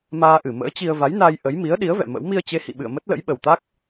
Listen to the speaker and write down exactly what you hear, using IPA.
maː˧ʔɨ˧˩ mə̰ː˧˥t͡ɕi˧ə̯ va˨˦jnaː˧j ʔə˨˦j mi˨˦ə̯ɗi˨˦ə̯vɛ̰˧˨ mə̰˧˥w mi˧ə̯t͡ɕe˨˦hḭ˧˨ɓɨ̰˧˨ə̯ mə˦˥t̚lə̰˧˥jɓə˨˩wt̪a˦˥k̚

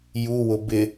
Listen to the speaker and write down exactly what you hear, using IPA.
juwʊ bɪ

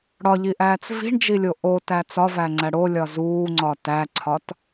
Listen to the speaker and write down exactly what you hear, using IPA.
ɽɒʎiʔæːt͡s vi̤ɳd͡ʒilʲo ʔotæ t͡sɒvæŋ͡ǀæ ɽolʲɒ zuːŋ͡ǀɒ tæǀʰɒt

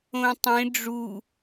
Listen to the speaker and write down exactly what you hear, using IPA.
õtˤẽ ɖ͡ʐu

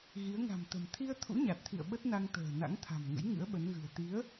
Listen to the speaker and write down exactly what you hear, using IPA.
ɣi˨˦ə̯ŋa̤˨˩mt̪ə̤˨˩m t̪ʰi˧ə̯ t̪ʰṵ˧˥ɲa˨˩t̚t̪ʰḭ˧˨ə̯ ɓə˦˥t̚na˧ŋt̪ə̤ː˨˩ na̰˧˥ŋt̪ʰa̤˨˩mŋə̰˧˥j ŋɨ̰˧˥ə̯ɓə˨˦nɣɨ̤˨˩ə̯ t̪i˨˦ə̯

